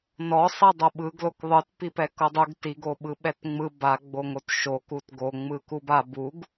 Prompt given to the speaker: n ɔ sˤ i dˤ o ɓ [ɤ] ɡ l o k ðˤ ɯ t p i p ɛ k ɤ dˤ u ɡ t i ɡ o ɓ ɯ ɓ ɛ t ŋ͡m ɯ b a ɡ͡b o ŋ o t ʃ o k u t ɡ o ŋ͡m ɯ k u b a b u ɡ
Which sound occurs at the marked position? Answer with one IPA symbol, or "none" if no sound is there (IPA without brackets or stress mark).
ɯ